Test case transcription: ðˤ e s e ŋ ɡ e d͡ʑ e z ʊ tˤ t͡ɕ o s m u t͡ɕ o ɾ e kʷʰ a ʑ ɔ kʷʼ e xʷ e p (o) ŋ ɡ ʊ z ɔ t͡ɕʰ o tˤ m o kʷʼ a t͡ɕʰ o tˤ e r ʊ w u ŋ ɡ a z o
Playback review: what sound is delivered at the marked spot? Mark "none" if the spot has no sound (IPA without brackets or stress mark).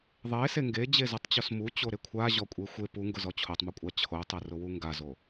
u